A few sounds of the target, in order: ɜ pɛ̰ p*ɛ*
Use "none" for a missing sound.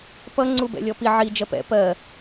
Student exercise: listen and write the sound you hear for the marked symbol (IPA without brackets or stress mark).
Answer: ɜ